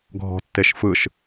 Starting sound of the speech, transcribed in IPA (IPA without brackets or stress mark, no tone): ɡʱ